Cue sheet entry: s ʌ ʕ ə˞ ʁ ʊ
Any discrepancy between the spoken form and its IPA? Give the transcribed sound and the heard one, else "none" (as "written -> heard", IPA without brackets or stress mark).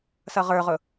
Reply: ʕ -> ʁ